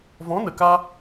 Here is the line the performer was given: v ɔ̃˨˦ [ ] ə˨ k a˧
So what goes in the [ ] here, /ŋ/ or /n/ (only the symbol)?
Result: n